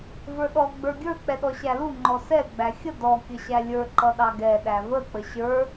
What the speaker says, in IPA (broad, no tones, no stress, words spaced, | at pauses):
və˞ɗɔ ɡ͡bə˞ɡʲə˞ k͡pɛɗɔɕælu ŋ͡ǃɔsɛ ɡ͡bæxʲə dɔ kʲəɕælʲə˞ ǃʌɗɑɡɛ ɗævə k͡pəɕə˞